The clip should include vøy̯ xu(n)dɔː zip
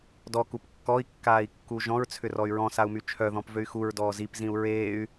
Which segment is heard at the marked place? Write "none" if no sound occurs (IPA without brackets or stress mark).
ɹ